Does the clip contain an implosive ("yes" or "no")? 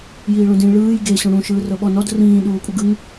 yes